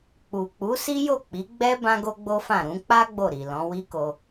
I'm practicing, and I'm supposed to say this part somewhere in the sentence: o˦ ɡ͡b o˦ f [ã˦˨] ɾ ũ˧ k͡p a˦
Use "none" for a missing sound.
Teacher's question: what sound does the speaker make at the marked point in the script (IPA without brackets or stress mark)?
ã˦˨